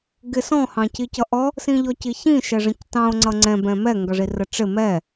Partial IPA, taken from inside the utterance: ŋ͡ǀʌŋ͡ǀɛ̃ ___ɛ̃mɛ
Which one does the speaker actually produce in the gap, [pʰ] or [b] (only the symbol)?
b